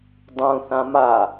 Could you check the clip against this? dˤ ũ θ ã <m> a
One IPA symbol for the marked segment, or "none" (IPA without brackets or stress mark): m